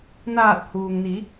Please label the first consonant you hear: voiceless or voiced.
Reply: voiced